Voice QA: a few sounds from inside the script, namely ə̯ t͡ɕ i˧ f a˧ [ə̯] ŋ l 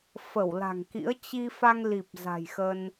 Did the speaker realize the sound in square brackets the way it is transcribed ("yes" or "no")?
no